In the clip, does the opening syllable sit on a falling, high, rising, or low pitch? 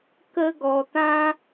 high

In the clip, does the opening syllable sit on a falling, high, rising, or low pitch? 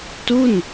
falling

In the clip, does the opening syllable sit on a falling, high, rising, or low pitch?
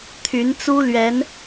rising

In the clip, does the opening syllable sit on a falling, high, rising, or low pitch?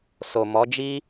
low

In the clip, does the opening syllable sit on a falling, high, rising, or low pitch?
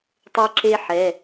high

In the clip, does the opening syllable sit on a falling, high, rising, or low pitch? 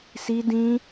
high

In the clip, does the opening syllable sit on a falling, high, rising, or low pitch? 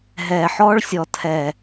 low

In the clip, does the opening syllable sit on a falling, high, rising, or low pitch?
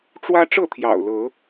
high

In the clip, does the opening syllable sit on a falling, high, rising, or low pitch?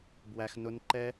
high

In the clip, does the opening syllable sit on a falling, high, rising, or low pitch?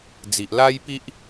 low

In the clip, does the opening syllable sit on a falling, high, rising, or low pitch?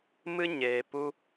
high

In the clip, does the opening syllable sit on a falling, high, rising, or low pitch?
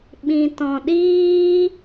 low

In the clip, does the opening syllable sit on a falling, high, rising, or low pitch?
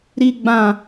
low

